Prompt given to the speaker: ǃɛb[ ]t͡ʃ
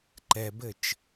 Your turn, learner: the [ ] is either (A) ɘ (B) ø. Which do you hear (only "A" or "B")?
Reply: A